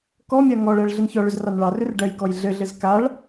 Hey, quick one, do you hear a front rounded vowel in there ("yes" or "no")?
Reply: yes